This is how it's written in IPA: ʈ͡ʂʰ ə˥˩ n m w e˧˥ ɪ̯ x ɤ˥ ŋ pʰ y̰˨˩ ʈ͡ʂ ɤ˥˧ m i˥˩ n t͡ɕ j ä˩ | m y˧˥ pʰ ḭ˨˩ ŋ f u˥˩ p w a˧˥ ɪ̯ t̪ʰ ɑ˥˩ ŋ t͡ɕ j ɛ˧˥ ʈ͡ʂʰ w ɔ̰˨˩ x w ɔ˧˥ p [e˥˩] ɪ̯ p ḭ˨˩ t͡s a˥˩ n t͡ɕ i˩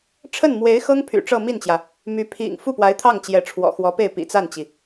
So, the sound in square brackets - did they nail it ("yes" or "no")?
yes